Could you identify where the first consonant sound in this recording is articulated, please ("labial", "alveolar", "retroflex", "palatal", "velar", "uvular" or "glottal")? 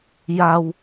palatal